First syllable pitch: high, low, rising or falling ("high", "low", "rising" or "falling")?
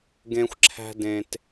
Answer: high